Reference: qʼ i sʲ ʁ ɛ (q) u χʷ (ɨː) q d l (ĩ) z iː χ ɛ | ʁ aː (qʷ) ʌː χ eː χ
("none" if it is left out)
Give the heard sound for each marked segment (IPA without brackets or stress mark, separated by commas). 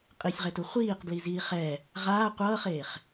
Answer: t, iː, i, qʷ